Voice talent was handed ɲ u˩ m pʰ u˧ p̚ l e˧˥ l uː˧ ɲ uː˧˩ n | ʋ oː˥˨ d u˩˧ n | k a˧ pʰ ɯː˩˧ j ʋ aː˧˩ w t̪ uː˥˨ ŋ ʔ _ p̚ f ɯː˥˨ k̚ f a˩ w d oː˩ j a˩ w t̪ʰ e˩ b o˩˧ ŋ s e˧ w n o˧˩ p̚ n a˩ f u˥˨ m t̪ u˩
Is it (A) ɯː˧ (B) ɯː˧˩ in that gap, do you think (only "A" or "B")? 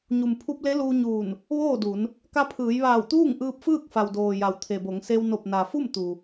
A